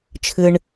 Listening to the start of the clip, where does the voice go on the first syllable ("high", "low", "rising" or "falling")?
high